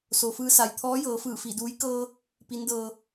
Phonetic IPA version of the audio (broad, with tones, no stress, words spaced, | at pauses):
so˩fɯː˧sa˩jt̪ʰɔː˧˥ jɤː˩˧fɯː˧˩fi˧˩duː˧˥j kɤː˧ | pi˧˥ndɤː˧